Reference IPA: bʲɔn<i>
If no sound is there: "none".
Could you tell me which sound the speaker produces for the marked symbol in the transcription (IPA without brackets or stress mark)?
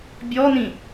ĩ